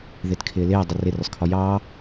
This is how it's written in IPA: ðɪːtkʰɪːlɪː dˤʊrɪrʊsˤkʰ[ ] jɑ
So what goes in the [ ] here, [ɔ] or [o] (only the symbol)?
ɔ